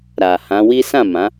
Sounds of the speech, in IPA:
ɾ a˨ h ã˨˦ w i˦ s ã˦˨ m ã˨˦

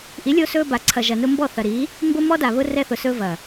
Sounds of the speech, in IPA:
ʔ i˨˦ lʲ o˧ s ɵ˧ b a˨ ǀʰ ɐ˨ ʒ ɐ˨ n ʊ˧ m b ɔ˦˨ θ ɐ˨ ɾ i˨˦ | m b ʊ˦ m ɔ˦ d a˨ β ʊ˦ r ɛ˧ θ ʊ˨ s ɵ˧ v ɐ˨

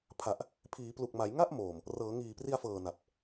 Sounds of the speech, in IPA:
pʰ a˨˩ ʔ | pʰ iː˩˦ p l u˨˩ k̚ m a˩˦ j ŋ a˥˩ ʔ m oː˨˩ m | r ɤː˩˦ ŋ iː˨˩ p r i˧ a̯ f ɤː˨˩ n a˨˩ p̚

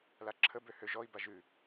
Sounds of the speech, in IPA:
l a ǁʰ ə b ø h ø ʒ ɔ i̯ b a ʒ ʉ

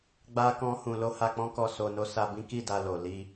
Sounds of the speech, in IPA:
ɡ͡b a˦ k ɔ̃˦ h ũ˧ l o˦ h a˧ k͡p ɔ̃˦ k ɔ˧ s o˧ n o˦ s a˧ b ĩ˦ k i˦˨ d a˧ l o˨ l i˧

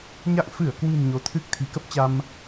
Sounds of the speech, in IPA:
ɲ a̰˧˨ ŋ f ɨ˧˩ ə̯ k w ɨ̤˨˩ n ɲ o˨˦ t̪ʰ ɨ˦˥ k̚ t̪ʰ i̤˨˩ k ə˦˥ p̚ t͡ɕ a˧ m

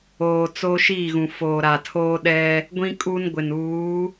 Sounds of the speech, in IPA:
oː˨ t͡s oː˦ ʃ iː˦˨ ɣ ũ˨ f oː˨ ɾ a˨ tʰ oː˦ ɗ ɛ˦ | ɡʷ ĩ˦ kʼ u˦ n ɡʷ ɪ˨ n uː˨˦

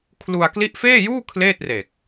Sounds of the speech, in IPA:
kʰ l u˧ a̯ k l i˦˥ ʔ f eː˥˩ j uː˥˩ kʰ l eː˥˩ t̚ r e˨˩ k̚

